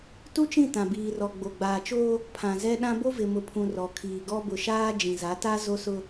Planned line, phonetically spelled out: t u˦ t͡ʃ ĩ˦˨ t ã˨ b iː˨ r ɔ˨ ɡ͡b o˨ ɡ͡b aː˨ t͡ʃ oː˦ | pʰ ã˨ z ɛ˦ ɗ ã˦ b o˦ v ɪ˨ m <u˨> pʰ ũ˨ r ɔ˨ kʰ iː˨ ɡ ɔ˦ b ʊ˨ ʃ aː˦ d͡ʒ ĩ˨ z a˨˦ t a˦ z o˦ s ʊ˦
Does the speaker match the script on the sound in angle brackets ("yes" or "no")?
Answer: no